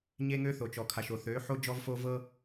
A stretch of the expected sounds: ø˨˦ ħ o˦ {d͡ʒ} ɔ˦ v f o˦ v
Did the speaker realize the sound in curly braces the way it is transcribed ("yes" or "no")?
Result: yes